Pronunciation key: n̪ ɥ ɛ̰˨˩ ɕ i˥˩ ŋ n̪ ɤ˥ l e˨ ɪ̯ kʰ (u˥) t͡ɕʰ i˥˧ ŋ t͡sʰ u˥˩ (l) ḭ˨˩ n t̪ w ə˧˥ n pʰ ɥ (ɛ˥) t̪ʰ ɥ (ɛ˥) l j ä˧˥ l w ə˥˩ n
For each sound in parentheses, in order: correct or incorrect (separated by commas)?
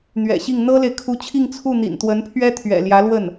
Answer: incorrect, incorrect, correct, incorrect